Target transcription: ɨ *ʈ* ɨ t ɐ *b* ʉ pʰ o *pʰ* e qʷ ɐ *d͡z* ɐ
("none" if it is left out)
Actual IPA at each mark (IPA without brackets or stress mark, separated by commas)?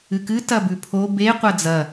k, b, b, d͡z